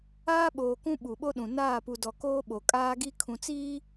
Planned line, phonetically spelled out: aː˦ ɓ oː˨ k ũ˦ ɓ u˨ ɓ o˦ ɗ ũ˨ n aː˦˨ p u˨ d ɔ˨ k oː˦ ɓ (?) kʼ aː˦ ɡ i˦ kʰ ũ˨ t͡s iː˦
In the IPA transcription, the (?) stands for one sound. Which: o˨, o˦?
o˨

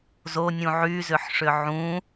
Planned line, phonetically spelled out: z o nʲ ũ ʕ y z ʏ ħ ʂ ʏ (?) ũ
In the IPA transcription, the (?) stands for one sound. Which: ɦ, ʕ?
ʕ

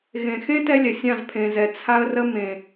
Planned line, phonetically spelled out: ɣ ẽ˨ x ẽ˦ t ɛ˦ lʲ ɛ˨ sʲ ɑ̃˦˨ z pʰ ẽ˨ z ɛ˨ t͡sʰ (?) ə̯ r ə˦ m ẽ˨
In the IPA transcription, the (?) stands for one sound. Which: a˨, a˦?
a˦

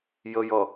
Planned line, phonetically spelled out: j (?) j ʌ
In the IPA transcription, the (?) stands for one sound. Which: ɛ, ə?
ə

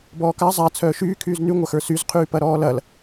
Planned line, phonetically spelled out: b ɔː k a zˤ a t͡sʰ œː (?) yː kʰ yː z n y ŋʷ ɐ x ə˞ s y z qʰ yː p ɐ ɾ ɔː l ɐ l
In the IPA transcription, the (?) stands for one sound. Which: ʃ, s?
ʃ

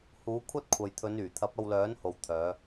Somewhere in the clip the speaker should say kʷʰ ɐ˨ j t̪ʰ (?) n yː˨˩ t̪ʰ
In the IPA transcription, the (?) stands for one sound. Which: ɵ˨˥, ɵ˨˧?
ɵ˨˧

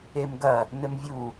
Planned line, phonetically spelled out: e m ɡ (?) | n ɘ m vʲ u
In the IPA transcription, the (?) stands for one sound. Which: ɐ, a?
ɐ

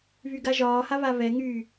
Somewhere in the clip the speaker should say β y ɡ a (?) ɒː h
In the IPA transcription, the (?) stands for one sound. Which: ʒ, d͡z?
ʒ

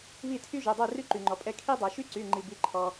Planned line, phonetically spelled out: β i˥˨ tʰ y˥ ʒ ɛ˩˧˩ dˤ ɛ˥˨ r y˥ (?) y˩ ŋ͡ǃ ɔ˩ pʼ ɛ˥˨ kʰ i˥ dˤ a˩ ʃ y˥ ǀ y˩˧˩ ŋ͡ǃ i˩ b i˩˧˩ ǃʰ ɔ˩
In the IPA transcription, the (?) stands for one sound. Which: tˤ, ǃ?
ǃ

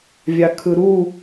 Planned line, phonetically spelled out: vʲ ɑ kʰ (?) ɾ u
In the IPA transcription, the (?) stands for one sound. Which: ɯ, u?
ɯ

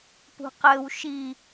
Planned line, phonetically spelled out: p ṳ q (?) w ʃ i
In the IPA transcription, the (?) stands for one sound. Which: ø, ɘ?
ɘ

